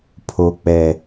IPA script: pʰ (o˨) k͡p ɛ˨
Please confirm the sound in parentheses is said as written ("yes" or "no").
yes